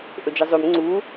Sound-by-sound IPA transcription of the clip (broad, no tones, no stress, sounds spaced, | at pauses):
ʔ ɵ d͡ʒ ɨ zˤ ʉ m ŋ͡ǀ u